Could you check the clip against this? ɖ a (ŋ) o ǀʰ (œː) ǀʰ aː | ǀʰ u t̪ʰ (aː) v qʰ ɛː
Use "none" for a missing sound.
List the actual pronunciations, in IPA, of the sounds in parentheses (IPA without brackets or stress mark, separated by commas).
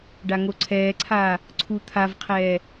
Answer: ŋ, ɛː, a